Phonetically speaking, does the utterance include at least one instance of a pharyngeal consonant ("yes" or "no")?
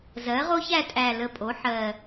yes